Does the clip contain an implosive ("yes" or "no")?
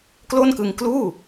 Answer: no